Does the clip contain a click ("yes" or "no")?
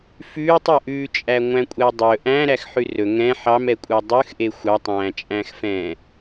no